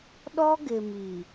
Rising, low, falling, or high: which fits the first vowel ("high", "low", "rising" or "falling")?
high